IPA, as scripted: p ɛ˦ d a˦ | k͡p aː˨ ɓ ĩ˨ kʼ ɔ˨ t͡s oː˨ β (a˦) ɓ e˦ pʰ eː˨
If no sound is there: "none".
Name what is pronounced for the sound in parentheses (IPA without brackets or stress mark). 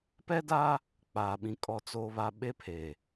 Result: a˨